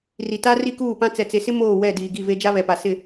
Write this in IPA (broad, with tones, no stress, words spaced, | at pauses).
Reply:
ri˨ta˦ ri˦kuː˦˨pã˦ t͡sɛ˨t͡se˨sɪ˦ moː˦˨wɛ˦˨diː˨ ɡi˦˨ve˦ d͡ʒa˦βɛ˨pa˨ sɪ˦˨